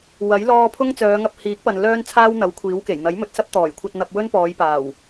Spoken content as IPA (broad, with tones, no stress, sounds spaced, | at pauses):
w ɐ˨˥ j l ɔː˧ pʰ ʊ˥ ŋ t͡s œː˨˧ ŋ ɐ˧ p̚ h iː˨˥ k̚ p ɐ˨ n l œː˥ n t͡sʰ aː˥ w n̪ ɐ˨˥ w kʷʰ iː˨˥ w k e˨˩ j n̪ ɐ˨˥ j m ɵ˨ t̚ s ɐ˥ p̚ t̪ ɔː˨˩ j kʷʰ ɐ˧ t̚ n̪ ɐ˧ p̚ w ɵ˥ n p ɔː˨˧ j p aː˨˩ w